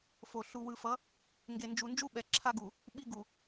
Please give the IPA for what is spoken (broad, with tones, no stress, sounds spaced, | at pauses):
f o˨ ɬ u˨ w ɯ˨ f ʌ˨˦ | ŋ ɡ e˨ n d͡ʒ u˨ n d͡ʒ u˦ ɓ ɛ˨ ǁʰ a˦ ɡ u˨ | ɓ i˦ ɡ u˨